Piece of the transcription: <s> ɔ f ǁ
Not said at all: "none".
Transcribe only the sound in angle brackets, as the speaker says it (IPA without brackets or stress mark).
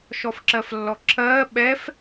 ʃ